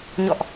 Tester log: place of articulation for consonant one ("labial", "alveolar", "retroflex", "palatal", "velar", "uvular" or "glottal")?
palatal